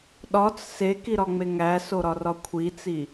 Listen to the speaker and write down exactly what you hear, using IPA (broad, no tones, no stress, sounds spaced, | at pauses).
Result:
ɗ ɒ t͡s s e k i ɾ ɒ ŋ͡m e ŋ æ s o ɾ ɒ r ɒ kʷʰ i t͡s i